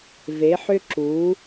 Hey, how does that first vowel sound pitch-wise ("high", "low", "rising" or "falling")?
rising